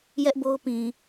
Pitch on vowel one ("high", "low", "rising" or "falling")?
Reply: high